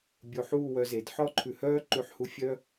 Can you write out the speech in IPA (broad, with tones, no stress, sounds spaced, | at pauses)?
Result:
bʲ o˧ ħ uː˥˧ w œ˧ z e˩˧ d ħ ɔ˥˧ ǃʰ ʉ˧ h œː˥ ǃ ʉ˥ ħ h u˥ fʲ œ˥